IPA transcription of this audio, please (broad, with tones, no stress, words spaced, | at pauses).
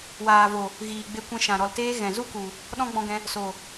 waː˨vo˨ | ɣiː˨ɡ͡be˧kʷɛ̃˧ʃã˨ ɾɔ˨lteː˧ ɣɛ̃˨zu˦ku˨ | ɗɔ̃˦ɡ͡bɔ̃˧ɡɛ̃˧ | so˨